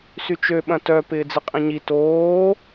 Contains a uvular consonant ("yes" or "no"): yes